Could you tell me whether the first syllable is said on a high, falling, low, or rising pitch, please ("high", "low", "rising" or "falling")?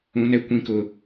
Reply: high